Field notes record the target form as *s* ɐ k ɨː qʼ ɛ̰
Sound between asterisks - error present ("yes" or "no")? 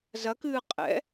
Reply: yes